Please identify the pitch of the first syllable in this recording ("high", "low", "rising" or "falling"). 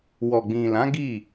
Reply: low